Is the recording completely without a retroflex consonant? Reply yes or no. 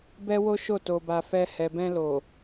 yes